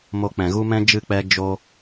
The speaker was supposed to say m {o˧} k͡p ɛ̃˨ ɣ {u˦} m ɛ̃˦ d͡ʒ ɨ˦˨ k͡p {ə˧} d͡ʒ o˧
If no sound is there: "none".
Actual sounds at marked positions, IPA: o˧, u˦, ɛ˧

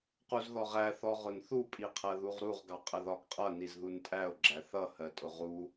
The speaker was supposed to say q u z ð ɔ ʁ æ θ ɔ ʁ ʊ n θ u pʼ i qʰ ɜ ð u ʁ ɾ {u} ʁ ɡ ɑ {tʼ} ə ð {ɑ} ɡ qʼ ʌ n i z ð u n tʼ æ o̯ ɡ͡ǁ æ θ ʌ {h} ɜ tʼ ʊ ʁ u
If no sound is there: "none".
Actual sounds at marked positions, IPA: u, qʼ, ɒ, h

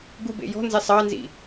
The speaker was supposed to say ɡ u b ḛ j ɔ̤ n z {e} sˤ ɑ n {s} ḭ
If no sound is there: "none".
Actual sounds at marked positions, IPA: e, z

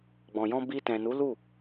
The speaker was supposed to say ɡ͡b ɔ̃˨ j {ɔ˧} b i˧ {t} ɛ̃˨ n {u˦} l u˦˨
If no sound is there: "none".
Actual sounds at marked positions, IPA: ɔ̃˧, t, u˨˦

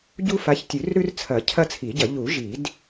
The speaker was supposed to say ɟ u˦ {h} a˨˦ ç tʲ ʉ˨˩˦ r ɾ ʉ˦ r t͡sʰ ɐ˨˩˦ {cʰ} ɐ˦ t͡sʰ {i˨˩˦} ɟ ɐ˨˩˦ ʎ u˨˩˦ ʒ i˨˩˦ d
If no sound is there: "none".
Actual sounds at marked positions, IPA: f, cʰ, i˨˩˦

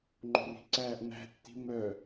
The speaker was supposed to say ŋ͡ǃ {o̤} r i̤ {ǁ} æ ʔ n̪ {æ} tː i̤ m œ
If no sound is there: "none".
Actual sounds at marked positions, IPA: o̤, ǀ, æ̤

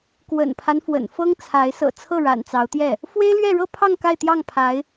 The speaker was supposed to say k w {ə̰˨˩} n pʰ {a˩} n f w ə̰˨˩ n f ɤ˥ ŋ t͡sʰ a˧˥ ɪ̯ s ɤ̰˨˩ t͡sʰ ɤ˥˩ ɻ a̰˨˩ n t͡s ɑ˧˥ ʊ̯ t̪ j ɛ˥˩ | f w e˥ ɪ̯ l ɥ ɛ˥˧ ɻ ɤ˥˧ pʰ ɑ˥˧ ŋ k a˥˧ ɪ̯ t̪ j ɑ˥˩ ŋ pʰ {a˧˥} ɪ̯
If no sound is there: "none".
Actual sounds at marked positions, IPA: ə̰˨˩, a˦, a˧˥

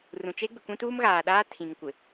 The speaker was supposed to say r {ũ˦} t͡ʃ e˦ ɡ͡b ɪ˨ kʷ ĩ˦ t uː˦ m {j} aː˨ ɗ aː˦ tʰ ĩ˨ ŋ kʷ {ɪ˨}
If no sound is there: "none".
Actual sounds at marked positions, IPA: ũ˨, ɣ, ɪ˨

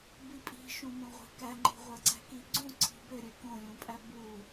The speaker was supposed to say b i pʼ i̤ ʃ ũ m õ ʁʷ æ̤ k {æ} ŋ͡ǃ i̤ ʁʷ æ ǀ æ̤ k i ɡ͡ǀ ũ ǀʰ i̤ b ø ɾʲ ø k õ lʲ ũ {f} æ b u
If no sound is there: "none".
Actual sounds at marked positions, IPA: æ, pʼ

